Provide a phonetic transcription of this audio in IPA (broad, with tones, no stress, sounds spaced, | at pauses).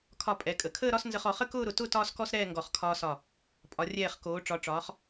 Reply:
kʰ ɒ˧˩ pʼ ɛ˩˧ kʼ ə˩˧ kʰ əː˥˧ ɾ ɒ˥˧ s n z ə˧ χ ɔ˩˧ χ ə˥ k ʊː˥˧ ɾ ʊ˩˧ t ʊ˥˧ t ɒː˥ s k ɔ˥ s ɾ ɛː˥˧ ŋ ɡ ɔ˧˩ χ kʰ ɒː˧ s ɒ˧˩ | pʼ ɒ˩˧ rʲ ɛː˧˩ χ k oː˩˧ ʈ͡ʂ ɒ˩˧ ʈ͡ʂ ɒː˩˧ χ